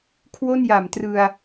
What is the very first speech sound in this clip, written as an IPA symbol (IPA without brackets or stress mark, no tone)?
kʰ